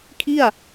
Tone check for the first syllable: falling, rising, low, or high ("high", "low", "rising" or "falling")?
falling